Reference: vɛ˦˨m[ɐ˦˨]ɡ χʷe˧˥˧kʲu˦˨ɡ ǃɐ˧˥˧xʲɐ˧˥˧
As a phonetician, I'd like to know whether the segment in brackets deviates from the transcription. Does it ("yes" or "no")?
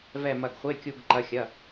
no